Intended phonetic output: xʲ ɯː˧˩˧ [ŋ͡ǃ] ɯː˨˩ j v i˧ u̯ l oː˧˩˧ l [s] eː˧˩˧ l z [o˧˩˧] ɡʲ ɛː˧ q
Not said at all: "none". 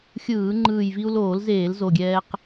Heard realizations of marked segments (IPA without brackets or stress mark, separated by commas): ŋ͡ǃ, z, o˨˩